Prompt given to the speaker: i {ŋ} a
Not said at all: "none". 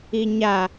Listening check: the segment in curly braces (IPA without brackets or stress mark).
ɲ